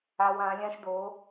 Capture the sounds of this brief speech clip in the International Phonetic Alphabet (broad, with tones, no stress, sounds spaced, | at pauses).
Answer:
a˥ w ã˧˥ lʲ ã˥ ʃ d o˧˥